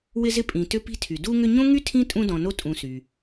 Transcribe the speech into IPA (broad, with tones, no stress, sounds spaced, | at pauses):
w ɪ˦ z ɪ˦ pʼ ĩ˨ t ʏ˦ p i̤˦ tʰ y˩ d u˦ ŋ ʏ˦ ɲ õ˥ ŋ y˥ tʰ ĩ˥ tʼ ũ˦ d ɔ̃˨ n o˦ tʼ ũ˨ s y˩